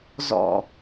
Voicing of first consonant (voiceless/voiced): voiced